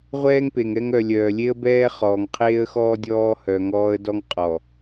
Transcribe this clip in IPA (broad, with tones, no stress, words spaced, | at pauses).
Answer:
ʁʷɛː˦ŋpe˨ŋɛ˦ŋ œ˨lʲœː˨lʲe˦ə̯bɛː˦ χɔː˨ŋqʰeː˦ə̯xɔː˦ dʲɔː˦hœ˨ŋɔː˦ə̯ dɔ˦ŋqʼɔ˨